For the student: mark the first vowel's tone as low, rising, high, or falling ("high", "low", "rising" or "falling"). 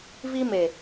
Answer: high